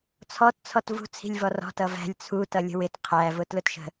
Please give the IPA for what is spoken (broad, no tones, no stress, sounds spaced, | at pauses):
t͡sʰ ɔ t t͡sʰ ɔ t v ṳ t͡sʰ i̤ lʲ v ɔ r ɔ̤ t ʌ v æ̤ lʲ t͡sʰ u t ʌ lʲ ə̤ w ɪ t qʰ æ v ʊ t l ʊ t ʃ ə̤